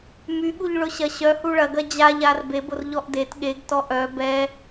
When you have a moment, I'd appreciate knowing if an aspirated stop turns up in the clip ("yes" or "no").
no